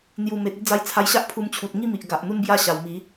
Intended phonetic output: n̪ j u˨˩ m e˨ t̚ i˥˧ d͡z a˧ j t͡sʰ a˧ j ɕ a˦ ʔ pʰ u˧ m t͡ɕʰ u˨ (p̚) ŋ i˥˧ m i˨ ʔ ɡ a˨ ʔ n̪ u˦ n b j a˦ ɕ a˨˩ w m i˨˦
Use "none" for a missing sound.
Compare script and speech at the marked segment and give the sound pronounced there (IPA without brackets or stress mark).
t̚